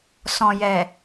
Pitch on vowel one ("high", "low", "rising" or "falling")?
low